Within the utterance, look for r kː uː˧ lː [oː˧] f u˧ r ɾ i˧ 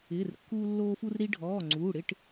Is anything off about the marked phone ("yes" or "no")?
no